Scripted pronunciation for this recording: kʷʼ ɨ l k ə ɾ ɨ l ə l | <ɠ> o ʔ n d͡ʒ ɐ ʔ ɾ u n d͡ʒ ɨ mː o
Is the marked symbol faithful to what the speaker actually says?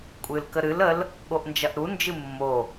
yes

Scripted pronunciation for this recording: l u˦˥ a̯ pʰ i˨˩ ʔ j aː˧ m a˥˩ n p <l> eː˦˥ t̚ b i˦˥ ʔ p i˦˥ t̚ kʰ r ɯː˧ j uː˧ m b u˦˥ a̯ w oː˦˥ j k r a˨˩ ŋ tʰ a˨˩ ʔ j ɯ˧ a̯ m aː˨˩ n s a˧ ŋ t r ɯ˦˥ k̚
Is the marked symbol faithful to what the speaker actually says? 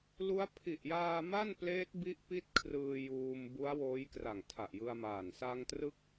yes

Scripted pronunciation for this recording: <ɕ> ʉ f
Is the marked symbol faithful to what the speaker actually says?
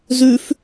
no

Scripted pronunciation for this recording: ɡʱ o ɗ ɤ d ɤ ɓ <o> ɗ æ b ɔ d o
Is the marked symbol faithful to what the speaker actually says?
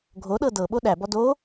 yes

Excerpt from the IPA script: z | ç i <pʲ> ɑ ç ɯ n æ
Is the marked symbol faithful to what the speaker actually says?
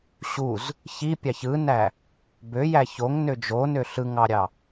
yes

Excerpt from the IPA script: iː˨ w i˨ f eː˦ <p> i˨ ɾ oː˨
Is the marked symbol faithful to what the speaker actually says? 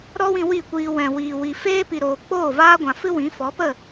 yes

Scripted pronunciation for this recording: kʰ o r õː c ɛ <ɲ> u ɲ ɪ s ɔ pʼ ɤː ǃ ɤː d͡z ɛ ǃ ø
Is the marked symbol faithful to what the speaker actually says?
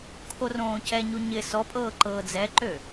yes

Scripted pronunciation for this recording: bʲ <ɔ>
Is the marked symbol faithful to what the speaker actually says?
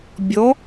yes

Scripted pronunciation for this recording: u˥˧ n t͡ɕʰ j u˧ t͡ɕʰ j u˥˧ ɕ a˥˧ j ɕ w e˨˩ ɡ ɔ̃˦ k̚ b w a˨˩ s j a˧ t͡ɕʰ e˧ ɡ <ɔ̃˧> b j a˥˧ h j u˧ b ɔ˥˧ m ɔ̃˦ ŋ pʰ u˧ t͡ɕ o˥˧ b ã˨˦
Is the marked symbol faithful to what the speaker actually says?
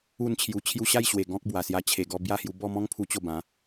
no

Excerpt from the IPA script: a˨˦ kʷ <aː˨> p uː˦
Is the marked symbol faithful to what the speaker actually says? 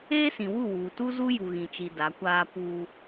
no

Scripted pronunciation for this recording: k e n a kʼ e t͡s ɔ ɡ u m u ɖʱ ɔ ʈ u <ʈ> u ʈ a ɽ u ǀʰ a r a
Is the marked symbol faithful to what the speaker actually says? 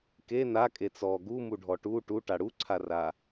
yes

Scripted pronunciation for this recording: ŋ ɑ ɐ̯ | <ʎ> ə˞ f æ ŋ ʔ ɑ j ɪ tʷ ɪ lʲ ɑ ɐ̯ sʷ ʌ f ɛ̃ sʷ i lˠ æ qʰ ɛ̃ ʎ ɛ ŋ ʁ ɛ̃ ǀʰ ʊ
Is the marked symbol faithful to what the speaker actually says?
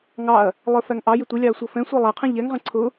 no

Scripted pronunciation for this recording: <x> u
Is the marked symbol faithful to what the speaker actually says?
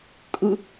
no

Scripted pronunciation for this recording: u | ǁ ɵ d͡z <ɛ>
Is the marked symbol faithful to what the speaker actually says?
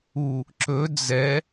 yes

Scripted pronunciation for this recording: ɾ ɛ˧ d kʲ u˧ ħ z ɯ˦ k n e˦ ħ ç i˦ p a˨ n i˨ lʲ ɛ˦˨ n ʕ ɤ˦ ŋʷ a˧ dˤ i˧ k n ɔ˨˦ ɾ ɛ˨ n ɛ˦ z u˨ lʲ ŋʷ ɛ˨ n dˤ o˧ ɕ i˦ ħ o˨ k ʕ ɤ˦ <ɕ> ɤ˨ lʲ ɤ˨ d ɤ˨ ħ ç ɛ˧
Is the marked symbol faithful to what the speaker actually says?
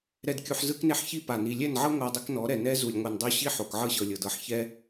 yes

